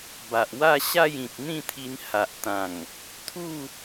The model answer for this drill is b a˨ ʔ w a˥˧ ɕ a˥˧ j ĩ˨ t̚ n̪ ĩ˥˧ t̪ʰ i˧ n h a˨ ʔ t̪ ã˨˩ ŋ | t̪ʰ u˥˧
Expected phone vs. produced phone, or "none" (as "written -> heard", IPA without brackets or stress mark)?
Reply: none